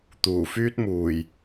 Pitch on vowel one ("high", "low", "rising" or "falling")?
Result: low